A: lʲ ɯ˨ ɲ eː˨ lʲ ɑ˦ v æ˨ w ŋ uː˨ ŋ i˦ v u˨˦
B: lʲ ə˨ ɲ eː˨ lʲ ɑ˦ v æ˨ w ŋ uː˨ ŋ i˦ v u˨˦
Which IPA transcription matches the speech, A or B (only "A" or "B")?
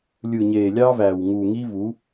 A